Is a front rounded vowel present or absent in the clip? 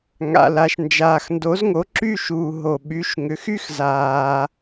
present